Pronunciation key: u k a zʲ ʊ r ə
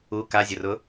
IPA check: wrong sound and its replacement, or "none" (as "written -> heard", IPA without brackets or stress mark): ə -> ʊ